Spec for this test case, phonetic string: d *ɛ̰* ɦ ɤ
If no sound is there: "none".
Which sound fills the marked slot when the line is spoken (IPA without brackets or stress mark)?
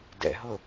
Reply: ɛ̰